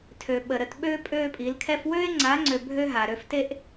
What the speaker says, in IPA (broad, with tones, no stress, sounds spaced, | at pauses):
tʰ ø˨ ɓ ə˨ ɾ ə˨ t ɓ øː˦ pʼ øː˦ pʼ i˨˦ l kʰ ɛ˦ f w øː˦ e̯ ŋ͡ǀ aː˨˦ ŋ͡ǀ ø˨ bʱ ø˦ ɦ a˨ ɾ ø˦ f t e˦ ʔ